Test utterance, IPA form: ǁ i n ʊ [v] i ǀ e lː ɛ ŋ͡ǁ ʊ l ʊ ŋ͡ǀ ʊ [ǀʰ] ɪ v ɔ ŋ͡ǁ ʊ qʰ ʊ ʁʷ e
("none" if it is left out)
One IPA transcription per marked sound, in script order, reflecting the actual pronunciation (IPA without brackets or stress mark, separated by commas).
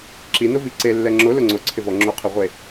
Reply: v, ǀʰ